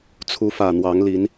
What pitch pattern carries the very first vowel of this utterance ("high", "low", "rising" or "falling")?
rising